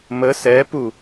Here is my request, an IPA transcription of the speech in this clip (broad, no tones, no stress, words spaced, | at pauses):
mə sɛpu